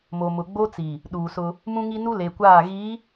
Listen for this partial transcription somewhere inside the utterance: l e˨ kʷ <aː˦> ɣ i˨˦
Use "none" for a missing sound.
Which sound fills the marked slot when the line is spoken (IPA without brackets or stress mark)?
aː˦˨